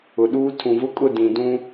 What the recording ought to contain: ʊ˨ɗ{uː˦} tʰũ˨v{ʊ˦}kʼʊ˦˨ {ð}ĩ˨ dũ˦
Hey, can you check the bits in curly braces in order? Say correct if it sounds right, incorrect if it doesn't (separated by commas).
correct, correct, incorrect